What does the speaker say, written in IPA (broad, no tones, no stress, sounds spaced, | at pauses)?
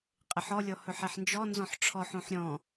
qʼ ɪ ħ ɔ lʲ ɔ h ɵ ħ ɛ ħ n d͡ʒ ɔ n z ɔ̃ ħ ʈ͡ʂʰ ɔ ħ õ ħ ɾʲ ɔ̃